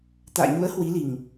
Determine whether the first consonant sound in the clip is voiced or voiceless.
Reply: voiceless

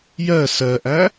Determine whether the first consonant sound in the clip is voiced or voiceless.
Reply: voiced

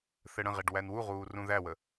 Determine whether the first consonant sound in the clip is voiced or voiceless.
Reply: voiceless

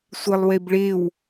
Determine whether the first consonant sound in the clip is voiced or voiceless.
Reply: voiceless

